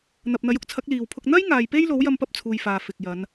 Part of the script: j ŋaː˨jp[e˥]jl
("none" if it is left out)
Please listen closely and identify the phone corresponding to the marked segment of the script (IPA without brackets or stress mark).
e˥